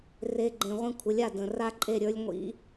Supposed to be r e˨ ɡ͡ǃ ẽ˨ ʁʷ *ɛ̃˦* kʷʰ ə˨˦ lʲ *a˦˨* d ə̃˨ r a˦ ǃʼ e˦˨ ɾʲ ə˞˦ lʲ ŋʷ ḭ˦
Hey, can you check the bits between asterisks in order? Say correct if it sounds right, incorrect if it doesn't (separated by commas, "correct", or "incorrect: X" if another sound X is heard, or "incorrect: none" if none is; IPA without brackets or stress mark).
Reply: incorrect: ẽ˦, correct